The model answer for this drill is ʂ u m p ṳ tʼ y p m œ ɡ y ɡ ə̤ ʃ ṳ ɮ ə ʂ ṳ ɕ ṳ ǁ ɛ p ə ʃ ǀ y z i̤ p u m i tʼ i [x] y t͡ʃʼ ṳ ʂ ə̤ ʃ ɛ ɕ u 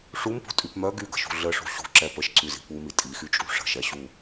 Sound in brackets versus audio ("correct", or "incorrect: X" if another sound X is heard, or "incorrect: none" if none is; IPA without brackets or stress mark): correct